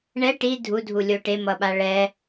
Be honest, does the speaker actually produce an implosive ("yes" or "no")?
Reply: yes